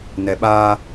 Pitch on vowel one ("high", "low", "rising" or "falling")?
low